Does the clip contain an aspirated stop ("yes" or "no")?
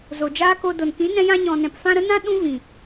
no